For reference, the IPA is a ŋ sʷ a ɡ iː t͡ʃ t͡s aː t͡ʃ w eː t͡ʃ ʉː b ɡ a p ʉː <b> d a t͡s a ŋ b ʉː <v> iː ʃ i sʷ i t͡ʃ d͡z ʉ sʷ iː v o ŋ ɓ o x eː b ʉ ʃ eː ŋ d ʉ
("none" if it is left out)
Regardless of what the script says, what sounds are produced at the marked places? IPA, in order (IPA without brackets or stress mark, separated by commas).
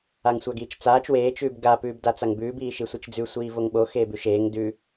b, b